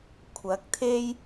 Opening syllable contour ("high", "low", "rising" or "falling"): rising